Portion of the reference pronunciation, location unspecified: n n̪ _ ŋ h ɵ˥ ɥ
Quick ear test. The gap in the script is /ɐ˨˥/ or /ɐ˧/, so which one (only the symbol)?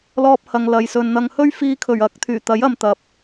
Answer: ɐ˧